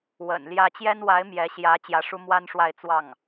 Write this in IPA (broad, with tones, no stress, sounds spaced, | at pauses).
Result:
w ə̰˨˩ n l j ä˥ t͡ɕ j ɛ˥ n w a˧˥ ɪ̯ m j ɛ˧˥ ɕ j ä˧˥ t͡ɕ j ä˧˥ ʂ u˥ m w a˥ n ʂ w a˥˧ ɪ̯ t͡s w ɑ˥˩ ŋ